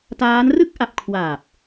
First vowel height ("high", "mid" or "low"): low